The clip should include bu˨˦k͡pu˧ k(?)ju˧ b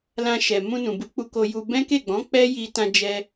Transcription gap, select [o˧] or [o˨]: o˧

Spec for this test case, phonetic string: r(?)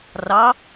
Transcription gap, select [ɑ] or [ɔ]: ɑ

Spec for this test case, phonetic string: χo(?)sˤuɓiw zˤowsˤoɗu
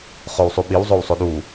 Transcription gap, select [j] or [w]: w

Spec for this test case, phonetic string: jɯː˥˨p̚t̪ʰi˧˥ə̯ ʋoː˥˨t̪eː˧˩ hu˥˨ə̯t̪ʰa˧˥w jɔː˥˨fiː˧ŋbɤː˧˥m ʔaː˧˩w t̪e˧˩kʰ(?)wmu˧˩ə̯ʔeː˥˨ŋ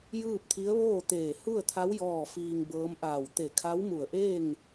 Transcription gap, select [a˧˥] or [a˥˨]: a˧˥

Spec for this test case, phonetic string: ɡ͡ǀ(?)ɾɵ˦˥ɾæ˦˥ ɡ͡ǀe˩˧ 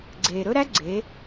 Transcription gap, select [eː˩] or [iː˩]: eː˩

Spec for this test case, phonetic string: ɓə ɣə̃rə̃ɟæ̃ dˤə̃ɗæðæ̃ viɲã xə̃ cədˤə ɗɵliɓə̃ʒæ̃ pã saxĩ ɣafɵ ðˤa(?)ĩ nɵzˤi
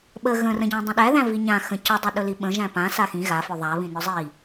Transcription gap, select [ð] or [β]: β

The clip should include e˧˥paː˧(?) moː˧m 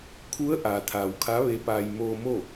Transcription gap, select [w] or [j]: j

